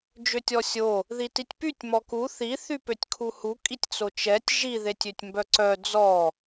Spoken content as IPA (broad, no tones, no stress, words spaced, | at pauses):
d͡ʒøtʲɔsʲo | ðititʲpytʲ mɔku θi θypøtʲkʰuhu kʼitʲt͡sot͡ʃɛtʲ ʒi ðetʲøtʲmbœǀœ d͡zɔ